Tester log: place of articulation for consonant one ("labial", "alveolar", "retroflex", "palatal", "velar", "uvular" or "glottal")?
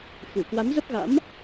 velar